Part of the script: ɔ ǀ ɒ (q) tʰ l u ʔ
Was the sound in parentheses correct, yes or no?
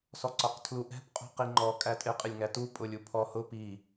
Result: yes